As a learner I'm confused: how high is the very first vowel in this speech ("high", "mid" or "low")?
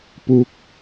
high